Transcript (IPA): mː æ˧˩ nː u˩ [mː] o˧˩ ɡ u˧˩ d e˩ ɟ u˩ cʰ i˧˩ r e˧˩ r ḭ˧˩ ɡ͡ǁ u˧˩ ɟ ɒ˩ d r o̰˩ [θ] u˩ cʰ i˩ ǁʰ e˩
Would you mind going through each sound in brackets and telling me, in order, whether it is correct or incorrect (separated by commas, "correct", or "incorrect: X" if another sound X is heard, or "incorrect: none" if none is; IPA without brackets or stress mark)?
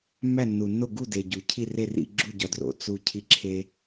incorrect: nː, incorrect: t͡s